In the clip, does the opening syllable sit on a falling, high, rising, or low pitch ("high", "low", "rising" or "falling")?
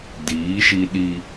rising